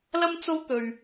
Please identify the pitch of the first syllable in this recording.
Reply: high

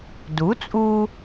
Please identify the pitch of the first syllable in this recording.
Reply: rising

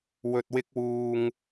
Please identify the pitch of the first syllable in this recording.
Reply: low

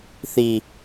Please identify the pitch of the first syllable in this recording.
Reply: low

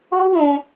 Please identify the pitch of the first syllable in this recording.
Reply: high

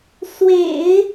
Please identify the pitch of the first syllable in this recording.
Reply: low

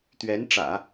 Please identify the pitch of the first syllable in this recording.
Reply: rising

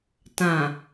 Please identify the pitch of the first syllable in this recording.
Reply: low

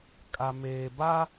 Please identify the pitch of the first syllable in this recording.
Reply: low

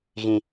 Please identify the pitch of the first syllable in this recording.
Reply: low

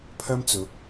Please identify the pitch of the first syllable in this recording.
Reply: high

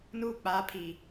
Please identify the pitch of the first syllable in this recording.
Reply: high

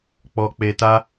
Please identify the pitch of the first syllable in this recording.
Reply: low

